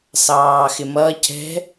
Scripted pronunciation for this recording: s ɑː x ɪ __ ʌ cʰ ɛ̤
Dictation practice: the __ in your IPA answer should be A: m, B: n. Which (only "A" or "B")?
A